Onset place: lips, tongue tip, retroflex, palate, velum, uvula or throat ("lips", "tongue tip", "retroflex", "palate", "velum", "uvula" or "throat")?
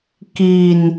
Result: velum